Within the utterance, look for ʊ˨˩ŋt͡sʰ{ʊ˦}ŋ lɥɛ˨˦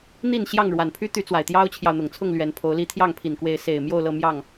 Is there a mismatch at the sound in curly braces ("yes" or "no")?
yes